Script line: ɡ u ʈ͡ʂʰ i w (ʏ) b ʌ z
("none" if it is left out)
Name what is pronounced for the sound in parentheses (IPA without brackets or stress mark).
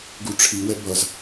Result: ɛ